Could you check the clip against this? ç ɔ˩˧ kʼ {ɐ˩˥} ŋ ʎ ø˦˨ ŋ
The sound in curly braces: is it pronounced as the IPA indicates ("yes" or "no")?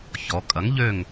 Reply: yes